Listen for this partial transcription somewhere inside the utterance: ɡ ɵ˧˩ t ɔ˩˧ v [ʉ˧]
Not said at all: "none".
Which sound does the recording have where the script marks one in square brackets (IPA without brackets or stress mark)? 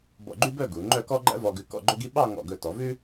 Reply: ʉ˥